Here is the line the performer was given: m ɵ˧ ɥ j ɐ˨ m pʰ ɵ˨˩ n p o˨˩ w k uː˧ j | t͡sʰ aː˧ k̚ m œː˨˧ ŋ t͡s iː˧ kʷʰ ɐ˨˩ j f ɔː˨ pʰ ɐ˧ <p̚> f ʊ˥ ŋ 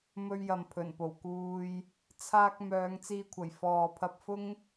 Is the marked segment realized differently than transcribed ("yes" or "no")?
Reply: no